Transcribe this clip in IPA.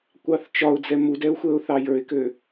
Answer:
kʷ ɑ θ t͡ʃ ɒ ʊ̯ d͡z ɛ m u d ɛ ʊ̯ xʷ ɛ ʊ̯ θ ɑ j ə˞ ɪ̯ k ø

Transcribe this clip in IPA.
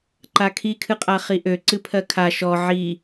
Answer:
ǃ a kʰ i kʰ ɨ qʼ a χ i ʔ ø ǀ ɨ pʰ ɜ kʰ a ʃ ɔ ʕ i

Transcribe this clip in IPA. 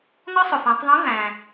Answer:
ŋ ɒ˥ sˤ ʊ˩ f æ̃˩˧ tˤ ðˤ ĩ˧˥ v æ̃˩

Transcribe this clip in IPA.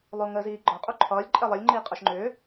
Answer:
lˠ o ŋ əː z iː ɡ͡ǃ ɒ qʼ o ǃʰ ɒː lʲ ǃʼ ɛ lˠ ʌ lʲ ŋ͡ǃ iː qʼ ɒ ʃ ŋ͡ǃ ʏː

